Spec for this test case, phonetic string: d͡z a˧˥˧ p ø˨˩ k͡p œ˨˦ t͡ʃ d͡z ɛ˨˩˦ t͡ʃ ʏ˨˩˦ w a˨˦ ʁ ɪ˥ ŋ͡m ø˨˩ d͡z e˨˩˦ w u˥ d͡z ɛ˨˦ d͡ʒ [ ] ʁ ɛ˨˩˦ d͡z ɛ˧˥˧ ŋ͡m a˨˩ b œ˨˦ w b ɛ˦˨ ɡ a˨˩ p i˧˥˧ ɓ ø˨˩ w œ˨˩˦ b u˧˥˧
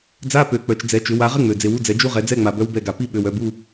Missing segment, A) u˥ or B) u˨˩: A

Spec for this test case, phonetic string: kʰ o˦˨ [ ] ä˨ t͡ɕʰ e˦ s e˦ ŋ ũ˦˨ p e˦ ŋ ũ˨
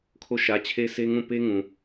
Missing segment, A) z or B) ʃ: B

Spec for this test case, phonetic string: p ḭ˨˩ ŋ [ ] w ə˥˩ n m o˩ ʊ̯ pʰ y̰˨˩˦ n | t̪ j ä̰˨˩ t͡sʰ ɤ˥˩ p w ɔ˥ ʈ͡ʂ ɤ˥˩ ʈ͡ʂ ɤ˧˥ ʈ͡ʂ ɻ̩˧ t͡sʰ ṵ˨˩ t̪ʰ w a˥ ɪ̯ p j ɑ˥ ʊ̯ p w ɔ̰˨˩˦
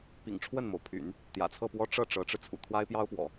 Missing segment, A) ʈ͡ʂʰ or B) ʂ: A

